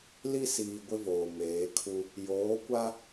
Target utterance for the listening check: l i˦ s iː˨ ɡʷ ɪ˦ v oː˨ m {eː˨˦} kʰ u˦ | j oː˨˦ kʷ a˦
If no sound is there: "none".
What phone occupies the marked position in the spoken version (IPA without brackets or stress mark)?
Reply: eː˨˦